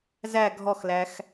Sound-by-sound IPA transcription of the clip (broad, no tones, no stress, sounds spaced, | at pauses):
z æ ɡʱ ɔ x l æ x